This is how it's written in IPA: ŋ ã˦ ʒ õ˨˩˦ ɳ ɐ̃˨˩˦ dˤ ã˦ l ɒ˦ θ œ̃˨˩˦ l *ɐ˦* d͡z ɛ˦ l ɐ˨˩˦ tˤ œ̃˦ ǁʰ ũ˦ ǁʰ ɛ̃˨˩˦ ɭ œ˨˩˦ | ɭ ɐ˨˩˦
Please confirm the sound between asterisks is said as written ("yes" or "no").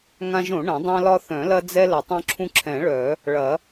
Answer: yes